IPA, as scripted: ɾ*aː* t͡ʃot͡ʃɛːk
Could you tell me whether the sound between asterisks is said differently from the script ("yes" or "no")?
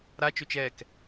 yes